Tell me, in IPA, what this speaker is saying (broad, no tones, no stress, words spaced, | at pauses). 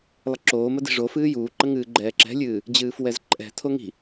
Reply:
lˠɪǁoːmə di̤ʐofɨː juːǃə ŋɨːɡ͡ǃɛːǁɛ̤lʲɨː | d͡ʑɨːfwɛzǃʼɛ̤tʰo ŋi̤